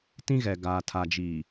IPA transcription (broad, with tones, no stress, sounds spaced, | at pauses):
t ĩ˦ ɣ ɛ˨ ɡ aː˨ tʰ a˨ d͡ʒ iː˨